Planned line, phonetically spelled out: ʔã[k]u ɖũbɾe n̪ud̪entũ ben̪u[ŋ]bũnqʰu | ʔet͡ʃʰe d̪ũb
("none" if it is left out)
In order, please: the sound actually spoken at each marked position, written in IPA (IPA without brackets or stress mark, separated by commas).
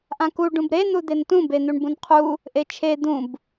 k, ɳ